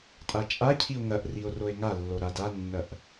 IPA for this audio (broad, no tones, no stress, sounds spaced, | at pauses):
tʼ a t͡ʃʼ a cʰ i o̯ ŋ ɐ ʔ r i o̯ r o e̯ ŋ a lː o ɾ a d a nː ɐ ʔ